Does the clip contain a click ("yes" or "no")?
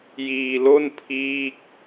no